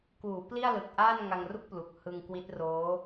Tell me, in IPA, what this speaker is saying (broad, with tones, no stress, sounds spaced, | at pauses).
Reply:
k uː˩˦ p l i˥˩ a̯ l ɯ˨˩ k̚ ʔ aː˥˩ n ŋ a˧ ŋ r u˥˩ k̚ p l u˨˩ k̚ h ɯ˧ ŋ k w i˦˥ t̚ r oː˦˥